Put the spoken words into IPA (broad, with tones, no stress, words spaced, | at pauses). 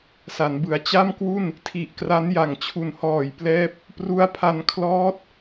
sa˩˦nbɯ˩˦a̯ t͡ɕa˥˩mkwu˥˩n | tʰi˨˩ʔkra˦˥n ja˨˩ŋt͡ɕʰu˨˩nhɔː˨˩jplɛː˦˥p̚ | pru˦˥a̯pʰa˧n kʰlɔː˦˥t̚